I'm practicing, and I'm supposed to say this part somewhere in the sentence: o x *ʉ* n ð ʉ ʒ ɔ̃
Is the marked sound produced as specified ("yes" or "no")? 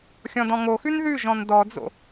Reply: yes